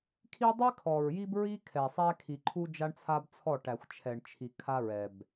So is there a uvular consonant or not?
no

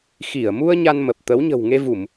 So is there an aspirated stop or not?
no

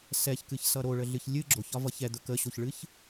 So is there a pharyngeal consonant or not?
no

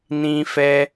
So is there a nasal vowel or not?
yes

